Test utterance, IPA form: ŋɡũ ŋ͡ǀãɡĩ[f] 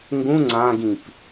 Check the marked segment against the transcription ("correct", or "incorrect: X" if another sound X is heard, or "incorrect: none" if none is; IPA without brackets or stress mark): incorrect: p